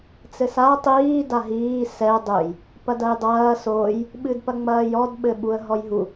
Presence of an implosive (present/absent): present